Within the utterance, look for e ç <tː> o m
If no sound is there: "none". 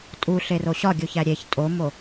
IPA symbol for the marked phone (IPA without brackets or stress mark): tʼ